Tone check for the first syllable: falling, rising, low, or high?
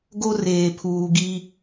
high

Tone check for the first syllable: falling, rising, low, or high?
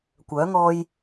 rising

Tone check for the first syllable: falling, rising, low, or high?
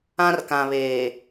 high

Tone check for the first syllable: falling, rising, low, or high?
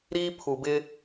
high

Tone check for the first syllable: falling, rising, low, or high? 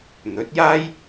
rising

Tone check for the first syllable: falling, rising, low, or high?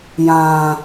low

